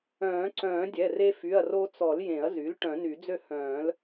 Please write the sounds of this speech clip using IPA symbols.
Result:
œ̃ː˨˩˦ ǀ œ̃ː˨˩˦ dʲ ɛ˩˧˩ r e˧ f y˩˧˩ ɐ̯ r o˧ t͡s ɔ˨˩˦ l j ẽ˨˩˦ ɐ̯ z y˩˥ l ʈ œ̃˨˩˦ n y˨˩˦ d͡z ø˥˩ h œ̃ː˨˩˦ l

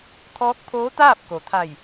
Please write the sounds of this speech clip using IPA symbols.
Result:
t̪ʰ ɔː˧˥ k̚ pʰ oː˧˥ t̪ aː˥˨ p̚ k o˩ t̪ʰ a˧˩ j

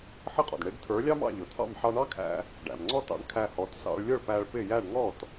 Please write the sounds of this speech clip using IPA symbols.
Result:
ħ ɪ˥˩ qʼ ɔ̰˩ d ɳ ɪ˩˥ d tʰ ə˞˩˥ lʲ ɑ˥ m ɑ̰˥˩ ʎ ʊ˩ tʰ ɑ̰˥˩ m ħ ɑ˧ ɳ ɑ˥ kʰ æ̰˧ | ɖ æ̰˩ m ŋ͡ǀ ɔ˥˩ t ɑ̰˩˥ ɳ kʰ æ˧ h ɔ˩˥ t s ɑ̰˧ ɭ lʲ ʊ˥˩ ɭ p æ˧ ɭ p ɪ˥˩ j æ˥˩ ɳ ŋ ɔ˥˩ t

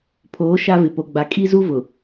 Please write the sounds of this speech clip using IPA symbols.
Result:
pʰ oː˨˦ ʃ a˦ v ɪ˨ p o˨ ɡ͡b a˨ kʼ i˦ z u˦ v ʊ˨

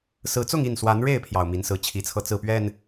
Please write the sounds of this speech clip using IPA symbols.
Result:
s ɹ̩˨˦ t͡s ʊ˥˨ ŋ i˥˨ n s w a˨˦ n ɻ e˥˨ ɪ̯ pʰ j ɑ˩ ʊ̯ m i˨˦ n s ɹ̩˨˦ t͡ɕʰ i˨˦ t͡sʰ ɤ˧ t͡s ɹ̩˥˨ p ɥ ɛ˥˨ n

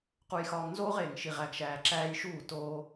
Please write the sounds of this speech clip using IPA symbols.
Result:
q u˧ j x ɒː˧ ŋ n z oː˦ ʁ eː˨ ŋ ʃ i˨ ʁ æ˨ ɡ ʃ æː˨ ǁ æː˧ j ʃ uː˦˨ t oː˧

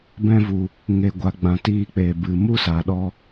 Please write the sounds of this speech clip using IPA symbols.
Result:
b ɛ̃˧ v u˨ | ŋ e˨ ɡʷ a˨ ɡ͡b ã˨ t iː˧ k͡p e˨ b ɨ˨ m u˦ s a˨ ɗ ɔ˧

